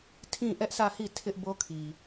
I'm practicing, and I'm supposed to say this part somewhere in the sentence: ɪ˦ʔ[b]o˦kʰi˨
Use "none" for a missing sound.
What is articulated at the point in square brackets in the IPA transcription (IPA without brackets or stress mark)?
b